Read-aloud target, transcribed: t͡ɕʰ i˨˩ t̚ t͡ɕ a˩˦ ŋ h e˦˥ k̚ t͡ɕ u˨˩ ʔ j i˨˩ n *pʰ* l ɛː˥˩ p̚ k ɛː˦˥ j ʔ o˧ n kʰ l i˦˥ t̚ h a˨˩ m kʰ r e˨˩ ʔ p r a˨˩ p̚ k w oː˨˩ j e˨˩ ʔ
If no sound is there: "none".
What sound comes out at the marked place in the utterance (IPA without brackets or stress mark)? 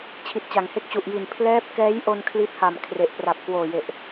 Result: pʰ